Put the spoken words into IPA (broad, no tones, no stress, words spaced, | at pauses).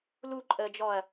luǃʼəːd͡ʒɔɐ̯